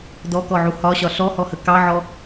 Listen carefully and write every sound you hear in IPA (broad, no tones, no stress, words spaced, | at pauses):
dɔkɔʕu hɒɕɒ ɬɔhɔhə kɑʕɔ